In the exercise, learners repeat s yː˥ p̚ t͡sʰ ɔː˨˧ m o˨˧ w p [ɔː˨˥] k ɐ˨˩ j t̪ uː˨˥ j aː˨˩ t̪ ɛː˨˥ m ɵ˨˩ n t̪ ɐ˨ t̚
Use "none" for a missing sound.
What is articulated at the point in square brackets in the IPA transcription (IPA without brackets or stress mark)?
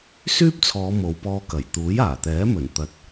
ɔː˧